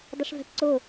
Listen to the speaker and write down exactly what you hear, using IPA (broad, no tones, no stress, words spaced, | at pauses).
dˤʊʂvɛ̤pǀʊ